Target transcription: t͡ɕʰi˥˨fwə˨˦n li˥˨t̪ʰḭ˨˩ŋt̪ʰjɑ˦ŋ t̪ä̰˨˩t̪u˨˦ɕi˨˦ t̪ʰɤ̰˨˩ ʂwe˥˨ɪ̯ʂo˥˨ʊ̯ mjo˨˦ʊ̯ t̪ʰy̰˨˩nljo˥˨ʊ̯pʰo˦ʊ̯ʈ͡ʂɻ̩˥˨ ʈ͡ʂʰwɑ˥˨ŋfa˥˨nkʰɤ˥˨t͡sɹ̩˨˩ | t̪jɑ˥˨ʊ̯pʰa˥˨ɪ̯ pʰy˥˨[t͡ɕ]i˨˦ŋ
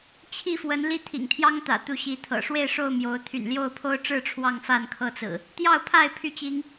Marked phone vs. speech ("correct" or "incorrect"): correct